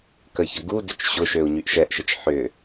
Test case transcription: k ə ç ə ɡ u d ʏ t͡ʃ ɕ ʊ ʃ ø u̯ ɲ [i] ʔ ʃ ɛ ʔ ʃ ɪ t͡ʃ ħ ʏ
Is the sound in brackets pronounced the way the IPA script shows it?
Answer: no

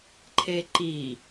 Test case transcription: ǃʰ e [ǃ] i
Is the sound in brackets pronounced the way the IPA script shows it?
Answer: yes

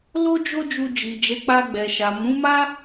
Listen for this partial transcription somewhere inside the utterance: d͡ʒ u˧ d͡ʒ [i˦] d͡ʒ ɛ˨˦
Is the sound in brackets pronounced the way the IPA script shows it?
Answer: no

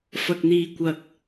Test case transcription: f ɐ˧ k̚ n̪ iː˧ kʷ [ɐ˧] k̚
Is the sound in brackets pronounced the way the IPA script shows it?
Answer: yes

